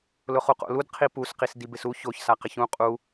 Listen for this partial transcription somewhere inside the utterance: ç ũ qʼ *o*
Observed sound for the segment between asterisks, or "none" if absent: u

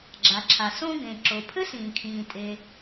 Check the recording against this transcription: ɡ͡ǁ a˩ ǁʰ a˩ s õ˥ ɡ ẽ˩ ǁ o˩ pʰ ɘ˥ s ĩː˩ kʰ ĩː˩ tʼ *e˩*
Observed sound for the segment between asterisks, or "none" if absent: e˩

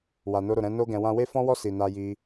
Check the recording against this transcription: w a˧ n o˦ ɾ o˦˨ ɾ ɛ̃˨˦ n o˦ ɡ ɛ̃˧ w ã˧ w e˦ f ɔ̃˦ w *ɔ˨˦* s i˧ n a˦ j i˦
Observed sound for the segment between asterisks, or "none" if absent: ɔ˦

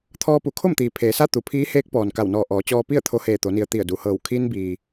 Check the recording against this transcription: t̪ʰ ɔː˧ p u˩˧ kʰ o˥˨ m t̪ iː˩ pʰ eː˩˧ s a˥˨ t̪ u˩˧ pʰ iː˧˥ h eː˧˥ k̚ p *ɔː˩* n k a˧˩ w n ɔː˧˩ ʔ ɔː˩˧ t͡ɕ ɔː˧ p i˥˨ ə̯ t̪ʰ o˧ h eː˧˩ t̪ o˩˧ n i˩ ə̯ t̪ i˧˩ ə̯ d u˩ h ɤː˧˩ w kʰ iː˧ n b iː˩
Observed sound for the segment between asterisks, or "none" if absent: ɔː˩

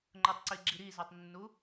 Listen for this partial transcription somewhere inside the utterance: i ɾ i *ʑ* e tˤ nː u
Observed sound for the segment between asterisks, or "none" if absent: z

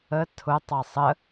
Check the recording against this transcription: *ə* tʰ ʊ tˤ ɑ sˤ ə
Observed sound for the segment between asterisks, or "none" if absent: ə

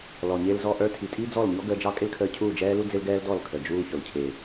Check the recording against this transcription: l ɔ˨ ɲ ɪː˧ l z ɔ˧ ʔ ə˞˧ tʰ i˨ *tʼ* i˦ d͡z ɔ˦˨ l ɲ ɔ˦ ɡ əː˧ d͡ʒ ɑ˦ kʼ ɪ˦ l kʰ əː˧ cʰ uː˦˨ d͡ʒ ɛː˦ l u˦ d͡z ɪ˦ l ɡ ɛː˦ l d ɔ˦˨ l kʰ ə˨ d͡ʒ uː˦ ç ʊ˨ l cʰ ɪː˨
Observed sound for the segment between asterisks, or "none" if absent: tʼ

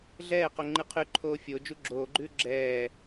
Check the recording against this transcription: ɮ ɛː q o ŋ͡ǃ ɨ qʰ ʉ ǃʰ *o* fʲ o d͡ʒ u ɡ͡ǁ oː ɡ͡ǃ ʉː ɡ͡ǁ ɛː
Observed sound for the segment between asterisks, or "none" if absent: oː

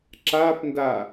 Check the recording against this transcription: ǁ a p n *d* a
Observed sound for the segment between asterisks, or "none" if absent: d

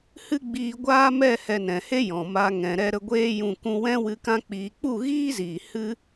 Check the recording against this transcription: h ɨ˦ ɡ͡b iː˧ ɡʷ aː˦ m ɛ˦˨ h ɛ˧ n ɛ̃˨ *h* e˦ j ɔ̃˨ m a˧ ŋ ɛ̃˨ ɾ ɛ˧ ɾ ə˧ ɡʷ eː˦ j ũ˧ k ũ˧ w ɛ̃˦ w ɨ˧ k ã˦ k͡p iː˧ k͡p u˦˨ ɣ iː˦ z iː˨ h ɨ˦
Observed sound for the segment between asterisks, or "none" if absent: h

